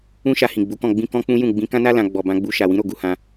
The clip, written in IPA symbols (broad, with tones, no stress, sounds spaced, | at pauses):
ũ˦ ʃ a˧ h ĩ˨ ɡ͡b u˨˦ k ɔ̃˦˨ ɡ͡b ĩ˧ k ɔ̃˦ k͡p ũ˦ j ũ˦˨ ɡ͡b ĩ˧ k ã˦ n a˦ l ã˧ ɡ͡b ɔ˨ b ã˧ ɡ͡b u˧ ʃ a˨ w ĩ˨˦ ɾ o˦˨ ɡ u˧ h ã˧